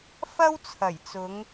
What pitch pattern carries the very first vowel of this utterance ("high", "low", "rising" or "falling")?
high